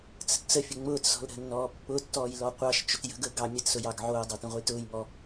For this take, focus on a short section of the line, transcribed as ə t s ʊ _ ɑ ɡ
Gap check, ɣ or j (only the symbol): j